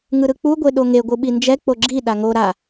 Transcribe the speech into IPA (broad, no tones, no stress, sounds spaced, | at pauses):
ŋ ɯ ɾ ɯ k͡p u ɡʷ e ɗ o ŋ e ɡʷ ɯ ɓ i n d͡ʒ ɛ k͡p o ɡ͡ǁ i ɗ a ŋ o ɾ a